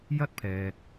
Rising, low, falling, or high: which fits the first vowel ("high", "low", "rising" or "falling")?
high